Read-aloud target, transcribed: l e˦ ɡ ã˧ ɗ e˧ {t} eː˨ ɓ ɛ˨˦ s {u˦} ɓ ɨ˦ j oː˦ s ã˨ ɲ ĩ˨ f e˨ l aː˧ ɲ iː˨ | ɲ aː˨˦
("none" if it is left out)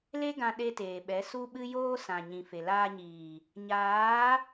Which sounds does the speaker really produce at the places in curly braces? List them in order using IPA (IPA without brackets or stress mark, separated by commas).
t, u˦